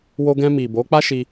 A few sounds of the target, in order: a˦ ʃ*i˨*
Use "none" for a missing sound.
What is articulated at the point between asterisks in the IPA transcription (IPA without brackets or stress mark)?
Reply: i˧